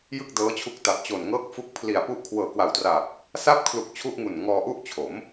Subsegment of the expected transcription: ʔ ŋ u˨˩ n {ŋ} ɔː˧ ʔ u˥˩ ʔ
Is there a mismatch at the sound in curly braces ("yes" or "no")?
no